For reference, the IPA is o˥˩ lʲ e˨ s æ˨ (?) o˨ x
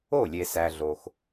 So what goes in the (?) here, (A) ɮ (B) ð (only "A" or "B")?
A